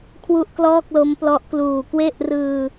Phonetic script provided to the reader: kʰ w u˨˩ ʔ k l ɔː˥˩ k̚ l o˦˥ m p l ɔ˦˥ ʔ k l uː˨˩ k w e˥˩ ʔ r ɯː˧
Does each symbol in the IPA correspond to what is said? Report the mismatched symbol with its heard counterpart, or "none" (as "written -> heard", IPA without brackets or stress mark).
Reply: u˨˩ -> u˥˩